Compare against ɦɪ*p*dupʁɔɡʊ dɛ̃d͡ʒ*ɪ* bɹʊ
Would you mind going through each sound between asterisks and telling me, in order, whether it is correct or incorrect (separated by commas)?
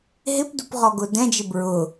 correct, correct